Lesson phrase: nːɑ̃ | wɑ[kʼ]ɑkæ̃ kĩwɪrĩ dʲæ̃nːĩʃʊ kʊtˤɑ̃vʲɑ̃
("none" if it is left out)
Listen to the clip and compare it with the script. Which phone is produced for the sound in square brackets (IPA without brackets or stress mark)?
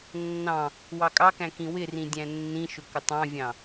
kʼ